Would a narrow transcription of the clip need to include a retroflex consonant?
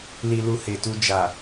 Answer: no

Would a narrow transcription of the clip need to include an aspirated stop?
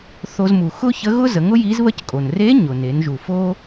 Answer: no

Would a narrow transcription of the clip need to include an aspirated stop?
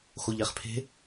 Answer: yes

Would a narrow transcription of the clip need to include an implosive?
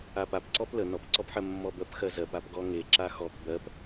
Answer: no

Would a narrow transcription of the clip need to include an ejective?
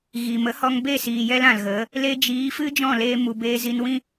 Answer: no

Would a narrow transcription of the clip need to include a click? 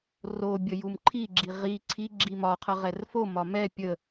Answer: yes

